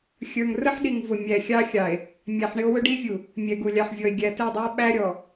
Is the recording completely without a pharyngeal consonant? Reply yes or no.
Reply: no